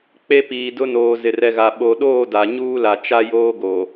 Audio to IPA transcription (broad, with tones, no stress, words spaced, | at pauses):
k͡pe˦piː˨dʊ˦noː˨ zɪ˨rɛ˨ɣa˨ ɓo˨ɗoː˦˨da˨ ɲuː˦la˨t͡ʃa˦joː˦ ɡo˨